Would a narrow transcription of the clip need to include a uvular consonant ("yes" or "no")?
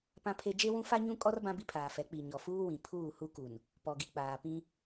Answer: no